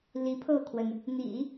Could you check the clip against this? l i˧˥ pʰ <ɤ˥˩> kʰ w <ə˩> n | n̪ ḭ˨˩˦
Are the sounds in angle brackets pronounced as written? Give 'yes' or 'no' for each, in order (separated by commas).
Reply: yes, yes